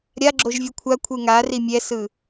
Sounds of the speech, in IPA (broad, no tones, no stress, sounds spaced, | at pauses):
ɾʲ a ɡ͡ǁ o ʒ vʲ ɯ kʷʰ a kʷʰ ɯ ŋ a r i mʲ ɛ s ɯ